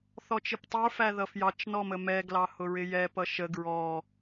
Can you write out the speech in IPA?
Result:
θɔt͡ʃɪptˤə˞ fæðʌfjɑt͡ʃ nɔməmɛ ɡlɑhʊɹɪjɛ pʌʃə ɡɹɔ

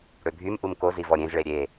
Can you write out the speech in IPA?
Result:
ɽøbʱymʔum kozi vɔɾʲẽzɭe ɾʲe

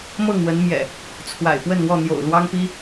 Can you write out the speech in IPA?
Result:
mɤ˥˨ŋwə˨˦nmjɛ̰˨˩ | t͡sʰwa̰˨˩ɪ̯pwə˥˨nwɔ˥˨ n̪jo̰˨˩ʊ̯ lwɑ˦ŋpi˦

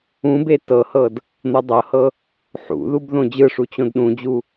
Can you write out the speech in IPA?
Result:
ũbe tɤhɤd | n̪ɤdˤɤhɤ | ħṵðub ðõd͡ʑɯʂu t͡ɕõdɗũd͡ʑu

